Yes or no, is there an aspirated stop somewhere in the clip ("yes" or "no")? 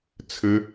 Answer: yes